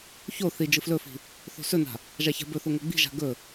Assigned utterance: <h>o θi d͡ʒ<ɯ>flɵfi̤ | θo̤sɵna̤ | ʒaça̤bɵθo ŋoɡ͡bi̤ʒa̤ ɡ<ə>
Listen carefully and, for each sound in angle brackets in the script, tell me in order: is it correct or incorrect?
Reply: incorrect, correct, incorrect

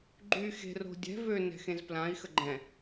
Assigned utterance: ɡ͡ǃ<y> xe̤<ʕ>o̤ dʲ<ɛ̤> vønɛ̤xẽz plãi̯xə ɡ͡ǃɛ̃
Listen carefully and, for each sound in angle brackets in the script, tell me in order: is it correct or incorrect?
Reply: correct, incorrect, correct

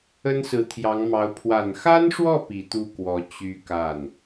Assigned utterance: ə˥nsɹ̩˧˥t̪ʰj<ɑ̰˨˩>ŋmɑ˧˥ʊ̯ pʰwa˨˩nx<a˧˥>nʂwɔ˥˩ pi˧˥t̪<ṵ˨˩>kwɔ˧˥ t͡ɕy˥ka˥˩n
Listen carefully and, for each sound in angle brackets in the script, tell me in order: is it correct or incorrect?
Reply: incorrect, incorrect, incorrect

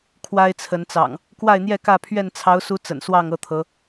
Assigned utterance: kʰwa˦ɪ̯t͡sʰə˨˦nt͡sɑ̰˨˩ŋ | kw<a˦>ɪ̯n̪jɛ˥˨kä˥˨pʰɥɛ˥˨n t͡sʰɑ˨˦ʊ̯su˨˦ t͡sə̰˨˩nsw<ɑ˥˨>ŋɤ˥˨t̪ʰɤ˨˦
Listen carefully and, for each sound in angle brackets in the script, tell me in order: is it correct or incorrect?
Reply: incorrect, correct

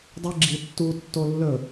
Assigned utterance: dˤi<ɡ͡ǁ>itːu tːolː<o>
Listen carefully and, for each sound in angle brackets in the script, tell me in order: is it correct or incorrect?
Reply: correct, incorrect

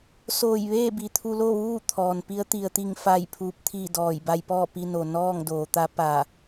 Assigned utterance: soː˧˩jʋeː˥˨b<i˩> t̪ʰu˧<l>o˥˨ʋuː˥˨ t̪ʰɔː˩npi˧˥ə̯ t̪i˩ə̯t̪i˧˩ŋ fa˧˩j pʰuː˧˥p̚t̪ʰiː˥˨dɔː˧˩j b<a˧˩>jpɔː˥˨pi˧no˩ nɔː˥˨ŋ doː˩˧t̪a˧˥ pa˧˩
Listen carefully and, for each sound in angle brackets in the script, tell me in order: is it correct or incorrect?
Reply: correct, correct, incorrect

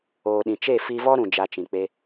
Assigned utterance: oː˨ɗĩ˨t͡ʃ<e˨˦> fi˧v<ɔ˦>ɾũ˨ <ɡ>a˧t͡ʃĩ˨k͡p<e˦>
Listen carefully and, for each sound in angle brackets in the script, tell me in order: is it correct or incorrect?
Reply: incorrect, correct, incorrect, incorrect

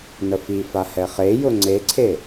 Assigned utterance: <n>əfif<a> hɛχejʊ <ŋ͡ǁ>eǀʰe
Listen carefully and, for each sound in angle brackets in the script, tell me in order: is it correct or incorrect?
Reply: correct, correct, incorrect

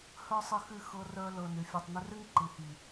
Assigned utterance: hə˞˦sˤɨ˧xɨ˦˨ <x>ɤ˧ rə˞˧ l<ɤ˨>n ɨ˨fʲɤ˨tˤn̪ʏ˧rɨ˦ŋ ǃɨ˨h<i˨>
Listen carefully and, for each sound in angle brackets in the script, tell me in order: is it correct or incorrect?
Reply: correct, correct, correct

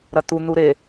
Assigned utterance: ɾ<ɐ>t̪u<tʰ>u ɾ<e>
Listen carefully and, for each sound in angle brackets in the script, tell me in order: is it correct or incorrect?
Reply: correct, incorrect, correct

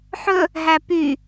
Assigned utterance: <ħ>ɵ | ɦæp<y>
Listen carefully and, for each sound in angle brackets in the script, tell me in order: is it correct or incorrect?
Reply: correct, correct

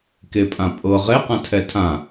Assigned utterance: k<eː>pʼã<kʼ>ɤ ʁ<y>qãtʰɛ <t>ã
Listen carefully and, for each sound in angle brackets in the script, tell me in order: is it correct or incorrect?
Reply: incorrect, incorrect, incorrect, incorrect

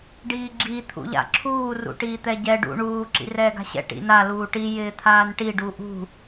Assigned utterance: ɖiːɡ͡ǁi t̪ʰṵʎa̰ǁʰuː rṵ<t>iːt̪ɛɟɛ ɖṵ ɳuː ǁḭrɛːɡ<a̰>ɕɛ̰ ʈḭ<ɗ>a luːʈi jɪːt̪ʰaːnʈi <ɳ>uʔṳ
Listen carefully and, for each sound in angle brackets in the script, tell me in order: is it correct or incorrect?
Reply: incorrect, incorrect, incorrect, incorrect

